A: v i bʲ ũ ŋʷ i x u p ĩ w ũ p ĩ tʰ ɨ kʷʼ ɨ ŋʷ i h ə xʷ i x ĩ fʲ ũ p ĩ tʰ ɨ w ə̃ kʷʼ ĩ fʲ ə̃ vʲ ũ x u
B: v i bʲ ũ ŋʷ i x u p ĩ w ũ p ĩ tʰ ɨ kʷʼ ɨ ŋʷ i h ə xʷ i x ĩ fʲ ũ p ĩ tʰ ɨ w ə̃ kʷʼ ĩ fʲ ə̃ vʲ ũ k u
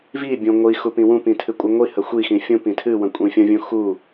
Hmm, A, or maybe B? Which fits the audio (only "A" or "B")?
A